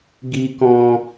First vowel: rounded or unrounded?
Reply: unrounded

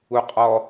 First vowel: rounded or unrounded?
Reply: rounded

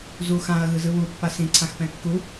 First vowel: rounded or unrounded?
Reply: rounded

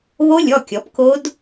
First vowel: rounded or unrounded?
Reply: rounded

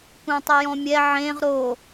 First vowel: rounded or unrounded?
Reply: unrounded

